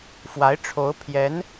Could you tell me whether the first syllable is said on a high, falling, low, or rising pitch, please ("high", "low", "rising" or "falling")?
rising